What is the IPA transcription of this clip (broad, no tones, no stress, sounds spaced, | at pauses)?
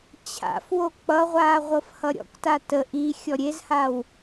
t͡ɕʰ a̰ f w o k͡p ʌ ʁʷ aː ʁʷ ɤ f h ʌ ɾʲ ɔ̰ k t a t ə ʔ i xʲ ɔ ɾʲ e z h aː w